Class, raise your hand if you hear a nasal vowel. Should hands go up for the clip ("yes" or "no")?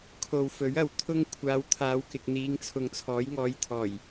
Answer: no